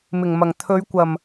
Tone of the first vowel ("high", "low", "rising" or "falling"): low